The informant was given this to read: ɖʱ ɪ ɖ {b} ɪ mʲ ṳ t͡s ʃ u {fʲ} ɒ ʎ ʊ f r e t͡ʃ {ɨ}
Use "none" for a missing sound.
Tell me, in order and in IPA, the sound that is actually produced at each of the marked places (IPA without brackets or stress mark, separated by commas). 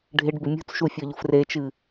b, fʲ, ɨ